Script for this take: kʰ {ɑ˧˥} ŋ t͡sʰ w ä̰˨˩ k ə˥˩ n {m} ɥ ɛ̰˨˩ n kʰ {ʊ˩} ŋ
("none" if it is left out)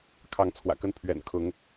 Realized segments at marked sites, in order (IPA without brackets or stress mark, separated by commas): ɑ˧˥, pʰ, ʊ˧˥